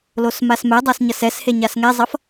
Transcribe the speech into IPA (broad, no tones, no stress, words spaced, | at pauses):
losmasmɛdˤas ɲʌsɛshe ɲasŋɛzˤʌf